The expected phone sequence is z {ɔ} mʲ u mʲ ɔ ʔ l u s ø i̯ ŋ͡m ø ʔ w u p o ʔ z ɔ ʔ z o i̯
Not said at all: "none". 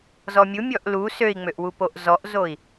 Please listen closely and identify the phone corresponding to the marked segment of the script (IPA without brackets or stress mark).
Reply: ɔ